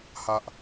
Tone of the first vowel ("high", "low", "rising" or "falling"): high